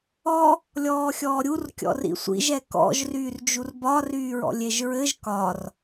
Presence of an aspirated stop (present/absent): absent